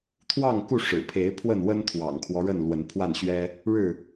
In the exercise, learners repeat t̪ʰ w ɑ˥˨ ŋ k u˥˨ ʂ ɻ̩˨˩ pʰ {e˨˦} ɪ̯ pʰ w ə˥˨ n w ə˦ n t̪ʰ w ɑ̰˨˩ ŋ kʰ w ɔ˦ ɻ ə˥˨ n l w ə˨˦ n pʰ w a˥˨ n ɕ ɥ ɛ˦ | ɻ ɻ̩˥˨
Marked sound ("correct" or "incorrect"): correct